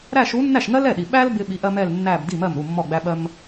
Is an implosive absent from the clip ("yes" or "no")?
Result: no